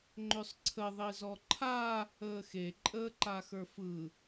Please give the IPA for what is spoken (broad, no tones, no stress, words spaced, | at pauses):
ŋ͡ǃʏsˤǀʰə ðˤizɔǃʰa | əːxe ǃʼəːǃaxə˞fɯ